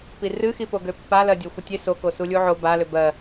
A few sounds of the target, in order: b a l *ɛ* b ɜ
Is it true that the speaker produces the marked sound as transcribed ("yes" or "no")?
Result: no